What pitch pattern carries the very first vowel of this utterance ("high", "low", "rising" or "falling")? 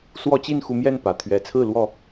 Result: high